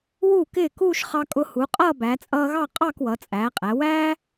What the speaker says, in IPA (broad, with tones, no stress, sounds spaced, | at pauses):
w u˧˩ k ɪː˧˩ k uː˥˧ ʃ χ ɑ˧ kʼ ʊ˧ h u˩˧ qʼ ʌː˥˧ b æ˩˧ t͡sʼ ʌː˧ ɣ ɑ˥˧ qʼ ɑ˥˧ k w ʌ˩˧ t͡sʼ æː˩˧ qʼ æ˩˧ w æː˥